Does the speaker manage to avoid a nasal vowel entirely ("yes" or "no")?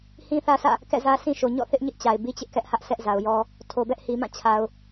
no